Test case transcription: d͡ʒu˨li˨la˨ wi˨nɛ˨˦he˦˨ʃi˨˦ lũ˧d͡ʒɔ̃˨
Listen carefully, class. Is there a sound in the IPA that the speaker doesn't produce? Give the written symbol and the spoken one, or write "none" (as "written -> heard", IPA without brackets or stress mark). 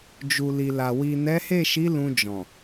none